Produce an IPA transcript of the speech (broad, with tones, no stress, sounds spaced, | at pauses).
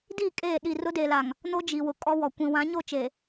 d i˦˨ kʼ eː˦˨ ɗ i˦˨ r ʊ˦ d e˨ l a˨ ŋ | n o˦ d͡ʒ i˨ w ʊ˨ kʼ ɔ˦ w ɔ˨ kʷ ĩ˨ w ã˨˦ ɲ o˦˨ t͡ʃ e˨